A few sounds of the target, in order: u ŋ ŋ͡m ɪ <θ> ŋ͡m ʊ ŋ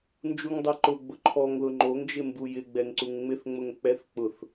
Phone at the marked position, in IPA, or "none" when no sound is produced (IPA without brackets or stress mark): θ